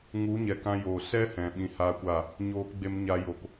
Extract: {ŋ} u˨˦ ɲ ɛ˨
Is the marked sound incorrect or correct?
correct